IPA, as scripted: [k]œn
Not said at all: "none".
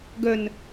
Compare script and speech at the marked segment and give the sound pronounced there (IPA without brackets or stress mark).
ɡ